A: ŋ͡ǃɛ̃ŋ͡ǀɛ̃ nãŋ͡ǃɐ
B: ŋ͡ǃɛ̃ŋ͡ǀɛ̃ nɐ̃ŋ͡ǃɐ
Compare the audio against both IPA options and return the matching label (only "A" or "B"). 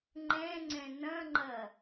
B